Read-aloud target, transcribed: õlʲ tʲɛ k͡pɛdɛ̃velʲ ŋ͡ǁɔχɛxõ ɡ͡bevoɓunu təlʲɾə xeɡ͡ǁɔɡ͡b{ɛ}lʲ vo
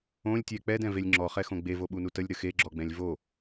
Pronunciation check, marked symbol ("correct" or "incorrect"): incorrect